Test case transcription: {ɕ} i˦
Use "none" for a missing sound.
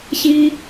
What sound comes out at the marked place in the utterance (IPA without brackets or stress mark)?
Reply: ɕ